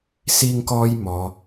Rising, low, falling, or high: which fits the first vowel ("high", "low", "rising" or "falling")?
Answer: high